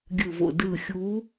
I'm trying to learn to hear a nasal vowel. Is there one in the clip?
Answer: no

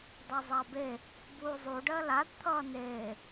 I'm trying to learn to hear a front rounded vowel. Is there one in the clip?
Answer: no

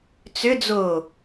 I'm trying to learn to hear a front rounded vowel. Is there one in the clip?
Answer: yes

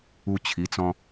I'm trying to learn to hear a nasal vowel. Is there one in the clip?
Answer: yes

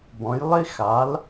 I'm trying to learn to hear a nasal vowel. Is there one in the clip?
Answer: yes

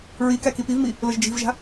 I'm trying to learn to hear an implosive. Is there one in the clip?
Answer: no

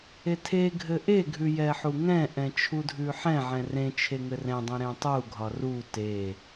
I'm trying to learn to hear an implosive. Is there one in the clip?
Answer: no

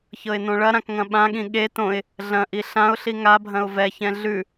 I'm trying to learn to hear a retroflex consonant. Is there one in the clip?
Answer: yes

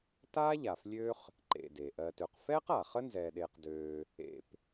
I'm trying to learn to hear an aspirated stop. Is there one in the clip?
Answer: no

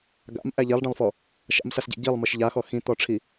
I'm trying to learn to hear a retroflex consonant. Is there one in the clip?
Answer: yes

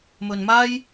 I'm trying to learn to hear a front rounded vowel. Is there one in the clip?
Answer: no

